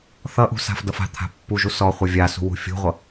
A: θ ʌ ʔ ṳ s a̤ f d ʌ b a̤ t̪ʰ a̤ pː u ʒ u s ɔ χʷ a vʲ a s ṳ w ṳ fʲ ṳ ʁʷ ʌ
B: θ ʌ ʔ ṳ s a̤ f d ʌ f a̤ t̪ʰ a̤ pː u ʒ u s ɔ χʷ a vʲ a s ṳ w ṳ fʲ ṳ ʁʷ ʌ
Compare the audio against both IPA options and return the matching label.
B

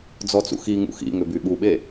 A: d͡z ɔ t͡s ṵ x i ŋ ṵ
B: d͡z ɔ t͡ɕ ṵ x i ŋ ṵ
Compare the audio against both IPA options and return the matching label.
A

